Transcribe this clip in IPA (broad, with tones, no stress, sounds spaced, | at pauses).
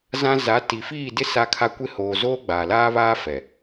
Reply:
z ã˦ z a˨˦ t i˨ f iː˦˨ d ɪ˦ s a˦ kʰ a˦ kʷ ɪ˦˨ h oː˨ z oː˦ ɡ͡b aː˨ l aː˦ β aː˦ f ɛ˨